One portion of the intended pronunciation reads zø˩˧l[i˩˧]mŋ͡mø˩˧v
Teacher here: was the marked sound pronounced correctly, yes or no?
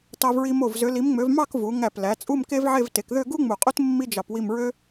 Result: yes